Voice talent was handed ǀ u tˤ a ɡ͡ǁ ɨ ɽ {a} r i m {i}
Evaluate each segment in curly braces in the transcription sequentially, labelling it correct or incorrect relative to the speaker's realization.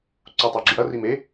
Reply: incorrect, incorrect

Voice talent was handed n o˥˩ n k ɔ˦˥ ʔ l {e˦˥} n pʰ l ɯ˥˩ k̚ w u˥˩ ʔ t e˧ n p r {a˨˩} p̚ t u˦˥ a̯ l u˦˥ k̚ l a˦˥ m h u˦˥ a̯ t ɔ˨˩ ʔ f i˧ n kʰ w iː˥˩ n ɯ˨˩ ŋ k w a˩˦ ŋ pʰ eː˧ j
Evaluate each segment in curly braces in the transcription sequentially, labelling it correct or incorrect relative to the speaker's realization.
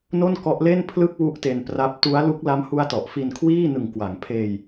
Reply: incorrect, incorrect

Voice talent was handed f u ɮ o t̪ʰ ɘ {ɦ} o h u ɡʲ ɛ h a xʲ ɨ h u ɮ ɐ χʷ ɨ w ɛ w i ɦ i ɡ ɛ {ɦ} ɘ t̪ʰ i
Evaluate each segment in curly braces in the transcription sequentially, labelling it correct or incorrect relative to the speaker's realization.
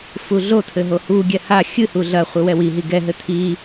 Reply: correct, correct

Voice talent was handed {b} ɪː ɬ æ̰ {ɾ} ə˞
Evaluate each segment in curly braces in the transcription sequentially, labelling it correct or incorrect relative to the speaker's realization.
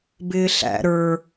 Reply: correct, correct

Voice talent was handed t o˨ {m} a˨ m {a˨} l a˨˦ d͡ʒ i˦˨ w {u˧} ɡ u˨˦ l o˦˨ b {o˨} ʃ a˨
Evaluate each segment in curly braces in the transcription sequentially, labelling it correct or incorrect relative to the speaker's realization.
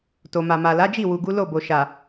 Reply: correct, correct, incorrect, correct

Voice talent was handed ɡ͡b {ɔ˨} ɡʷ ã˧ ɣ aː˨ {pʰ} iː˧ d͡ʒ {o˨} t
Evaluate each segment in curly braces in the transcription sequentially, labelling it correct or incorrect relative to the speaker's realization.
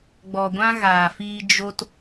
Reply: correct, incorrect, incorrect

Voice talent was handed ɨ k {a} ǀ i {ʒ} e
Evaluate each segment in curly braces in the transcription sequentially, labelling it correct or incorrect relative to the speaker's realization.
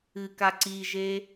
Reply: correct, correct

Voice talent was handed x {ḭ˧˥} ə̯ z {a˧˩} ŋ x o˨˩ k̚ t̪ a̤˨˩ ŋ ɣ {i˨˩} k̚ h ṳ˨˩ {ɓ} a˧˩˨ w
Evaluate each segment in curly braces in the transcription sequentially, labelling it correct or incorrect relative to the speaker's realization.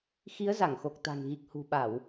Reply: incorrect, correct, correct, correct

